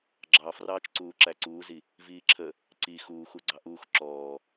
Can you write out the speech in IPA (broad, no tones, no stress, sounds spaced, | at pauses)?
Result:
ɡ͡ǁ ɑ f r ɑː t͡ʃ ǀ uː ǁ æ ǀ uː z i | v iː ǁʰ ə | ǀ i x uː x u ɡ͡ǀ ɑ ʔ uː x ǁ ɔː